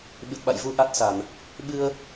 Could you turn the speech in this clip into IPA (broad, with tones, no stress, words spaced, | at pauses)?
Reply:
ɓɨ˨˩t̚ɓa̰˧˨jvu˧ ʔa˦˥t̚sa˧˩˨n | ɓɨ˧ə̯